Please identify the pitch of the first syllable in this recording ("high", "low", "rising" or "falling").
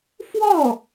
falling